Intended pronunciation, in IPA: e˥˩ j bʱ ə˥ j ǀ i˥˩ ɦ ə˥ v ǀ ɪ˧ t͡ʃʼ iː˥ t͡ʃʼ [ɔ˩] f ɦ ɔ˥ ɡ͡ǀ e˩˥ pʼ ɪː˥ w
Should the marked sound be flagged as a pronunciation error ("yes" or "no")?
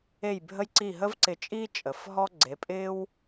yes